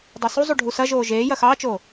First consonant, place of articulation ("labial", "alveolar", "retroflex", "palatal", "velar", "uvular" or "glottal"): alveolar